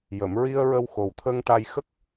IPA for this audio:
j ə˨˩˨ m ɹ i˧ ə̯ ɹ ə˧ w x o˨˩ w t̪ʰ ə˧ ŋ ʈ a˧ j x ə˦˥ k̚

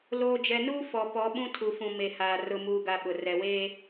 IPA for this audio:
l oː˨ d͡ʒ ɛ˨ n uː˦ f ɔ˨ p ɔ˨˦ ɓ ũ˦ tʰ u˨ f ũ˨ m e˨ h aː˨ r ʊ˨ m uː˨ ɡ a˨ ɓ ʊ˨ r ɛ˨ w eː˦

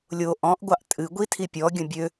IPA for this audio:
lʲ o ʔ ɔ̃ ʔ ɡʷ ɑ ʔ tʼ ɨ ɡʷ i tʰ i pʲ ɔ ɡʲ ə̃ bʲ ø

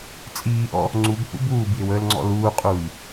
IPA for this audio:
t͡sʼ iː ʔ ɔ̰ | ŋ͡ǀ u b h ṵ b uː b j ɪ w əː l ŋ͡ǀ ɔ̰ l uː qʼ uː j

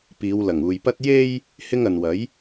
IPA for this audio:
p iː˨˧ w l ɐ˨˩ ŋ uː˨ j p ɐ˥ t̚ j e˥ j | h ɪ˥ ŋ ɐ˨ n w ɐ˨˥ j

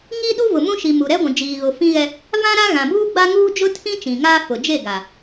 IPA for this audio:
ŋ i˦ ɗ u˦ v ʊ˨ m ũ˦ ʃ i˨ m uː˨ ɾ ɛ˦ ɡʷ ũ˨ d͡ʒ iː˨ ɣ ʊ˨ f ĩ˦ ɣ ɛ˦ | v ã˦ ɾ a˦ ɣ ã˨ b uː˦ ɡ͡b a˦ ŋ uː˦ d͡ʒ ʊ˦ tʰ ĩ˦ t͡ʃ ĩ˨ ŋ aː˦ f ʊ˨ d͡ʒ e˦˨ ɡ a˨

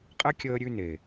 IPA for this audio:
qʼ ɛ˦ kʲ əː˧ ɾʲ ʉ˧ n e˨

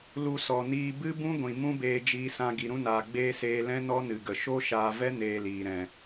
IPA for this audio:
l u˧ s ɔ˨ n iː˧ b ɨ˦ b ũ˦ ɡʷ ĩ˨ m ũ˦ b eː˧ d͡ʒ iː˧ s ã˧ ɡ i˨ ɾ ũ˧ n aː˨ ɡ͡b eː˧ s eː˧ l ɛ̃˦ n ɔ˦ n ɨ˨ ɡ ə˨ ʃ o˦ ʃ aː˧ v ɛ˦ n eː˧ l iː˨ ɾ ɛ̃˨

